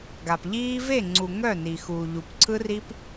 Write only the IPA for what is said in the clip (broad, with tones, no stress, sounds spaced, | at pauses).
ɡ a˨ p ʎ iː˦ v e˦˨ ŋ͡ǀ u˨ ŋ œ˦˨ n i˨ x uː˨ ʎ u˨ p ǀʰ ɯ˦ r i˦ p